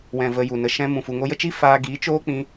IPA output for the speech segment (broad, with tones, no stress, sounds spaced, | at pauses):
w ɛ̃˨ v ə˨ j u˨ n ə˧ ʃ ɛ̃˦ m ũ˨ f u˨ ŋ o˧ j ə˦ t͡ʃ i˦ f aː˧ ɡ iː˨˦ t͡ʃ oː˦ k͡p ĩ˧